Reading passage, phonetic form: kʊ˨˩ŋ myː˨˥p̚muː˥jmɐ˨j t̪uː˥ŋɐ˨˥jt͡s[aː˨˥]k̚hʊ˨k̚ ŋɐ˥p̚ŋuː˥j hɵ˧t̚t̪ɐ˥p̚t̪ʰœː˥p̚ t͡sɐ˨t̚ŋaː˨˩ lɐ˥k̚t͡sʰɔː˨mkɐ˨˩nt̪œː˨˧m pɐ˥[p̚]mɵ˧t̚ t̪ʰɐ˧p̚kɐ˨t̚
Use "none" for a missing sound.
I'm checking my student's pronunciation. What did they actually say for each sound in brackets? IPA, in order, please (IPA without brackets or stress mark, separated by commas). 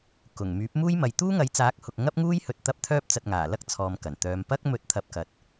aː˨˥, k̚